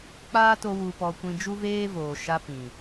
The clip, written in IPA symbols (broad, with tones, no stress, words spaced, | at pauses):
k͡paː˦to˧ wu˨pɔ˨ kʷĩ˧d͡ʒu˦veː˦voː˨ ʃa˧ pĩ˨